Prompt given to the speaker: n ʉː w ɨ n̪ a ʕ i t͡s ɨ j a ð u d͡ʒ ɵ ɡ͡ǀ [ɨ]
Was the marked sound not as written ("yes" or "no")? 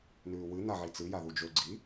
yes